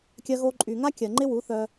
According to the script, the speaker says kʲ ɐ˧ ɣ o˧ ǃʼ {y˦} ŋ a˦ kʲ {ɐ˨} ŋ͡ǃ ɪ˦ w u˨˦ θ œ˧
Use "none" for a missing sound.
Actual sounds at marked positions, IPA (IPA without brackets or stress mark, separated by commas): y˨, ɐ˨